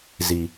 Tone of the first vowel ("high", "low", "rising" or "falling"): high